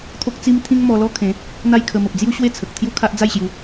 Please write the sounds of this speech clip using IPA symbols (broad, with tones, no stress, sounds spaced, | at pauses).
t̪ʰ o˦ k̚ t͡s i˦ m t̪ʰ ĩ˦ ŋ m ɔ˧ l ɔ˦ kʰ ẽ˨˦ | n̪ a˥˧ j kʰ ə˧ m ə˨ p̚ d͡z j u˦ ɕ w e˥˧ t͡sʰ ə˨ k̚ t̪ʰ j u˦ kʰ a˦ ʔ d͡z a˥˧ j ɕ j u˨˦